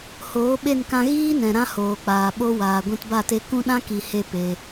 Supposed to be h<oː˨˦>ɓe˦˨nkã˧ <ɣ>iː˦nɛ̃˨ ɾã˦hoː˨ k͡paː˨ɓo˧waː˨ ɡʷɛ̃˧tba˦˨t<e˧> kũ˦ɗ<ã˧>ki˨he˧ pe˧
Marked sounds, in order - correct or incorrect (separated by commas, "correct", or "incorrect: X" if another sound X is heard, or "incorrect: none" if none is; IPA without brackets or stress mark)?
correct, correct, correct, incorrect: ã˦